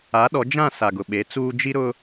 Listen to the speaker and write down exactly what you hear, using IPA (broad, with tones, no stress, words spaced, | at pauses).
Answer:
a˨˦ɗɔ˨˦d͡ʒã˦˨ sa˨ɡʊ˨ɓe˨˦ t͡suː˦ d͡ʒi˦ ɾʊ˦